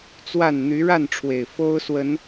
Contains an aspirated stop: yes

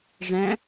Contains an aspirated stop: no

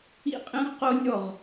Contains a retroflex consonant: no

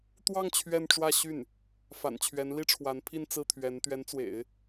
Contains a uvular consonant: no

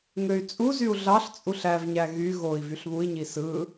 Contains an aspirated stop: no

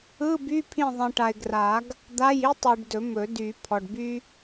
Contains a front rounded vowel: yes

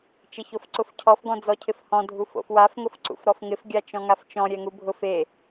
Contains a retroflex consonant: no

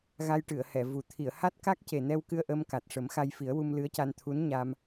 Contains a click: no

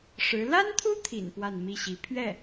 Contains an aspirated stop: yes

